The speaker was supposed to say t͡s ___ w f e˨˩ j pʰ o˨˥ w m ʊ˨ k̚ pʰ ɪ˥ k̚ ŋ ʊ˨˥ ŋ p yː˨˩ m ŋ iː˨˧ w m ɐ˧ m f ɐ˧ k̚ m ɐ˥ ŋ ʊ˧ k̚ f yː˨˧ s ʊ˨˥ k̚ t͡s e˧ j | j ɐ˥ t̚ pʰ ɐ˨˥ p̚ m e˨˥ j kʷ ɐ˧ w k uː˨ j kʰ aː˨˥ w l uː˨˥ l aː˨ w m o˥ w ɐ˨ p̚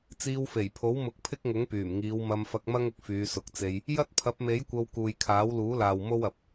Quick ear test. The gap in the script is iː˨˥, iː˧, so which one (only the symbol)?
iː˧